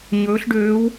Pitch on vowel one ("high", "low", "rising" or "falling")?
rising